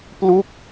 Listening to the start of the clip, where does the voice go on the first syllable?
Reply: falling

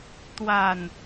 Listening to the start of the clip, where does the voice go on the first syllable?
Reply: low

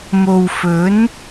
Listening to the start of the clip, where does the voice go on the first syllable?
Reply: low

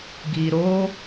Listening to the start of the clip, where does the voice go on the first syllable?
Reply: low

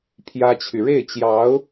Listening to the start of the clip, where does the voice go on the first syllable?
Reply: high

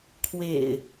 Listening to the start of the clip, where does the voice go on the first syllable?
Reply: low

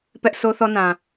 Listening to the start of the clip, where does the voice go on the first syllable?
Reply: high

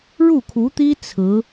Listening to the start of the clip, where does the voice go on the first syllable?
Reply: falling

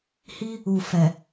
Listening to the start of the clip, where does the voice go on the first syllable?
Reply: high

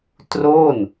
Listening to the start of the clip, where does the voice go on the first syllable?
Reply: falling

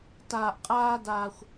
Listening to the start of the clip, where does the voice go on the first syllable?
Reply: high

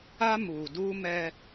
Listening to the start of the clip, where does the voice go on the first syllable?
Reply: high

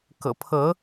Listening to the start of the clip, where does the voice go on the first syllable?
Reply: low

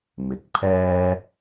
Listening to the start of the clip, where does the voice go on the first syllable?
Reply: rising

